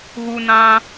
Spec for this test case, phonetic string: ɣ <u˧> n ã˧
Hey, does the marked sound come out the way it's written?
yes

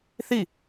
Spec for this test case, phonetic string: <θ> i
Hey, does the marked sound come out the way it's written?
yes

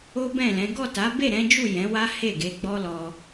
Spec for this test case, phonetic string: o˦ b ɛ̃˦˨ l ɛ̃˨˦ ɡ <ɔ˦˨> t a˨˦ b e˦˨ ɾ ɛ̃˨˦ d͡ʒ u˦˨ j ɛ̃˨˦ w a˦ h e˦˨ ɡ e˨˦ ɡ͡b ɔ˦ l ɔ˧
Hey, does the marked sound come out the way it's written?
yes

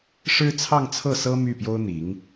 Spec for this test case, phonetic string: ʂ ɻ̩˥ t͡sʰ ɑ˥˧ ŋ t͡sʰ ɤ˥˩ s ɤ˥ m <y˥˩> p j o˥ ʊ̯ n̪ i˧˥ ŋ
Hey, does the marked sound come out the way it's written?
yes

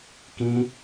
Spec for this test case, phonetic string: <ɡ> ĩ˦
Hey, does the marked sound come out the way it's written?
no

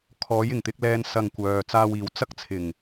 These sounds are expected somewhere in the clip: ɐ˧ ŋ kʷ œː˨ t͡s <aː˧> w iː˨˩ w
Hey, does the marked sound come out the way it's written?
yes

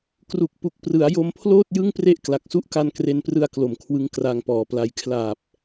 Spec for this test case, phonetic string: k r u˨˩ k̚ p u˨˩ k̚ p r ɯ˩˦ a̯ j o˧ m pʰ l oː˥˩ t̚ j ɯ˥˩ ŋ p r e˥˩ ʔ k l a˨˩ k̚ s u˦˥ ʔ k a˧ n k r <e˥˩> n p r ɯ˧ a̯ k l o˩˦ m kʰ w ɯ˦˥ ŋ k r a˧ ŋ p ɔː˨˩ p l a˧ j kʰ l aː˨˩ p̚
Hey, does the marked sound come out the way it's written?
no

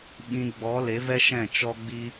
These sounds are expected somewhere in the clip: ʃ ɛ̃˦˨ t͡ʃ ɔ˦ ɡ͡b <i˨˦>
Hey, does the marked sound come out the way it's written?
no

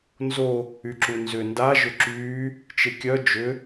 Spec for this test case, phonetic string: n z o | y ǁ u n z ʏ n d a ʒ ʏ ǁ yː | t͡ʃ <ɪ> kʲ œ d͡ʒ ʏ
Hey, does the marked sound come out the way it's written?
yes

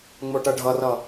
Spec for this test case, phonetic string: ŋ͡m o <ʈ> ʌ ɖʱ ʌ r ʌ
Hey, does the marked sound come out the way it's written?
yes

